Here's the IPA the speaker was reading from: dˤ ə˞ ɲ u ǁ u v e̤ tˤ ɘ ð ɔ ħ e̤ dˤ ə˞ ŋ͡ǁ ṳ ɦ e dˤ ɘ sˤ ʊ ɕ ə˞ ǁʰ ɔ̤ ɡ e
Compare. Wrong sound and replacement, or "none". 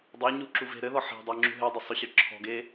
tˤ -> ɾ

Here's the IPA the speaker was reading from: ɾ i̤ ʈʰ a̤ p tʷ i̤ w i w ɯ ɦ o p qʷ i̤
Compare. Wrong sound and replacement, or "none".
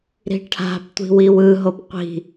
none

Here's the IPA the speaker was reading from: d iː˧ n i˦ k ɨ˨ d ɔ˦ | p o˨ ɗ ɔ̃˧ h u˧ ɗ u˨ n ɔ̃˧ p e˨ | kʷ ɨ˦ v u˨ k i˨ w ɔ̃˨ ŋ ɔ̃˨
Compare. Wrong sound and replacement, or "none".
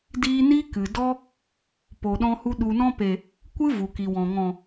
none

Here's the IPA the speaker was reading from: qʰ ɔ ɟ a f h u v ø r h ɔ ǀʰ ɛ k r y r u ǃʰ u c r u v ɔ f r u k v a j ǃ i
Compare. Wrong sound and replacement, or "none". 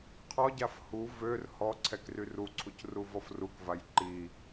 ǃʰ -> ǀʰ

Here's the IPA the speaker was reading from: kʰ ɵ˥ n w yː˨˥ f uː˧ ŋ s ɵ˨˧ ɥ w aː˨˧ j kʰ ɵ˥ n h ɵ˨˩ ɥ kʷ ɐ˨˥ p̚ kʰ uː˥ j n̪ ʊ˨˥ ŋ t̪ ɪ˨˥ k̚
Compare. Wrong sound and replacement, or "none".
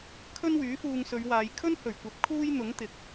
none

